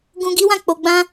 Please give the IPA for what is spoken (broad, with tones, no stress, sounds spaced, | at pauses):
ɡ ũ˧ ɡ i˦ w ã˦˨ k͡p o˨ ɡ͡b ã˧